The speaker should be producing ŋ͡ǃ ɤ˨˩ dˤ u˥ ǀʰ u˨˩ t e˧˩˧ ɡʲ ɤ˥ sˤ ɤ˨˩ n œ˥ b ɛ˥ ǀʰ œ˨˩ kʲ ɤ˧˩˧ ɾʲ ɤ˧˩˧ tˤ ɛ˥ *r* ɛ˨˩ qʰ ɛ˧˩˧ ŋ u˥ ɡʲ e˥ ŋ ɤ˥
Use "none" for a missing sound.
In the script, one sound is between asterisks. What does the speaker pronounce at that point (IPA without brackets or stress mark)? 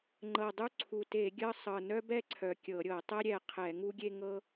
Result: ɾʲ